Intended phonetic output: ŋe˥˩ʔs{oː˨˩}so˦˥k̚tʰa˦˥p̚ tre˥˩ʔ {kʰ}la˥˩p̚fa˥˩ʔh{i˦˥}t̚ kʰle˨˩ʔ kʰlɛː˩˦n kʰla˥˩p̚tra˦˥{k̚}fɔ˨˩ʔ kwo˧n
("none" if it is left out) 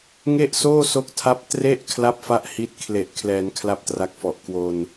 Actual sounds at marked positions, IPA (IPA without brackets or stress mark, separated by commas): oː˥˩, kʰ, i˦˥, k̚